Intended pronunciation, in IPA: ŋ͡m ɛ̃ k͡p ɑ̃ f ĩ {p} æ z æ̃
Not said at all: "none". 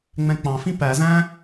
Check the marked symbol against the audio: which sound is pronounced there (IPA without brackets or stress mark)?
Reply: p